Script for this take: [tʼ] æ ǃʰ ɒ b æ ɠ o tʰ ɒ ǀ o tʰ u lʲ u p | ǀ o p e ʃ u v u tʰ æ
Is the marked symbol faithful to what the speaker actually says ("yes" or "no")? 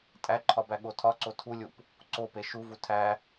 yes